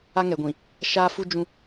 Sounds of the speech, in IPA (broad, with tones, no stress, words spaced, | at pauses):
a˦ŋɛ˨ɡʷĩ˨ | ʃaː˦fu˦ d͡ʒũ˦